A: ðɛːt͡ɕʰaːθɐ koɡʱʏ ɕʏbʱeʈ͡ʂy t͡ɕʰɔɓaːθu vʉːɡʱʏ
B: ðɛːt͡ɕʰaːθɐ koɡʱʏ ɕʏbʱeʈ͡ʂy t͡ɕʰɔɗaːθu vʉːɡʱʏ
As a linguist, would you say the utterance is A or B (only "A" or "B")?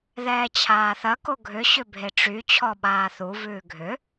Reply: A